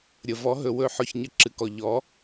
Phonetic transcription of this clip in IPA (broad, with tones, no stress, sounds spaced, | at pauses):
ɾʲ ə˩ v ɔ˩˥ ɦ ɵ˩ w ɵ˧˩˧ ħ ɔ˩ ç ɲ ə˩˥ ǁ ɨ˩˧ k ɔ˩ ʎ ɔ˩˥